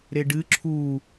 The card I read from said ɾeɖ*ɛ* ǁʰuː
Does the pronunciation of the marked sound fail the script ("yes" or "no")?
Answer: yes